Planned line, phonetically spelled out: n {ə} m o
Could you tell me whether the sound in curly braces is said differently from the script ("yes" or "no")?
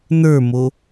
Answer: yes